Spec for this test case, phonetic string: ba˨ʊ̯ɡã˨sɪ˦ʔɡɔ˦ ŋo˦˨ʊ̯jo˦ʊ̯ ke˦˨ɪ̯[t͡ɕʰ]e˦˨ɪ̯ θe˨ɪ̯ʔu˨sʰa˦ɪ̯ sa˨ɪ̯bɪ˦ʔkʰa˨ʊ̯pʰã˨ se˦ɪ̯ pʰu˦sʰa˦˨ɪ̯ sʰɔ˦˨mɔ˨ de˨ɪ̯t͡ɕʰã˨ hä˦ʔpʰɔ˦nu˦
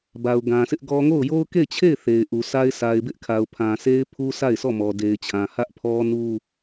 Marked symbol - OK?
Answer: yes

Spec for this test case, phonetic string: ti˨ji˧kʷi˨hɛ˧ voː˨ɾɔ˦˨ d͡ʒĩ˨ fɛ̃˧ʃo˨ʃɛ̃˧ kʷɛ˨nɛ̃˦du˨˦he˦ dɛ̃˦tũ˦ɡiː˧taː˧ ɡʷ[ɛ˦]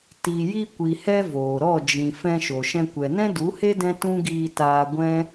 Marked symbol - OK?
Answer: no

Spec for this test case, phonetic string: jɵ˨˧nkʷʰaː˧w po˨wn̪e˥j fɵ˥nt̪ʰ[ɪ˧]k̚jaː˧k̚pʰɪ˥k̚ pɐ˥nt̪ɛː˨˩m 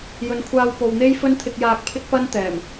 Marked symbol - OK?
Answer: yes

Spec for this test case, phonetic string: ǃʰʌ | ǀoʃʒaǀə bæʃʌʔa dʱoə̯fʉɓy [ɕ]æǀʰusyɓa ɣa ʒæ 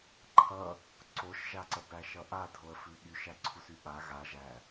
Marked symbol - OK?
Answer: no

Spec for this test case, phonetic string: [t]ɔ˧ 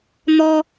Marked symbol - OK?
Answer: no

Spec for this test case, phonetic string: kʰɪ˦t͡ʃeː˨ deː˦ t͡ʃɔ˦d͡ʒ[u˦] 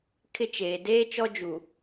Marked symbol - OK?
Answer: no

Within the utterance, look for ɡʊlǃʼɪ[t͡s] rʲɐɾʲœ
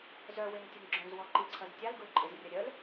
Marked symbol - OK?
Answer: no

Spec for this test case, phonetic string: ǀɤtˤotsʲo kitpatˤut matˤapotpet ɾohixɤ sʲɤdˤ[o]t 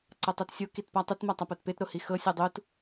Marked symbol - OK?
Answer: no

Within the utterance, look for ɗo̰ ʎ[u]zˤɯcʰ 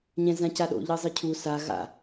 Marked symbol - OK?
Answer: no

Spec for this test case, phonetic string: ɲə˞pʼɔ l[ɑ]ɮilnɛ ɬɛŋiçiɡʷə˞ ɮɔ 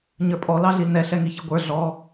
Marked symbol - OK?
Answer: yes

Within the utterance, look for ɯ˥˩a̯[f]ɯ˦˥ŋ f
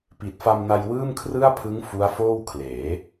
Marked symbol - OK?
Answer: no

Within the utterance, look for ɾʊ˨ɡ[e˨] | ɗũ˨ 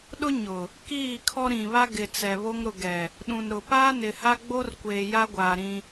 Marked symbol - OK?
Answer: no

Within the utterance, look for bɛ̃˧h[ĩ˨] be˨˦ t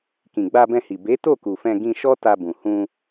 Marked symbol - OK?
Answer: no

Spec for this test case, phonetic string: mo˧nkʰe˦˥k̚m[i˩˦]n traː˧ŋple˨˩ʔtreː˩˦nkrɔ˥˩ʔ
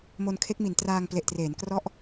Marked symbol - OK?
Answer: yes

